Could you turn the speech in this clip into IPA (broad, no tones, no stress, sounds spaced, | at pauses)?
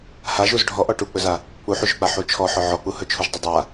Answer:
h a ʒ u z ɖʱ ɔ ʔ ɔ ʈ u k͡p ɵ z a | k͡p u ħ u ʒ ɵ k͡p a ħ u t͡ʃʰ ɔ ħ ɔ ʕ ɔ k͡p u h ɵ t͡ʃʰ u ʒ dˤ ɵ dˤ a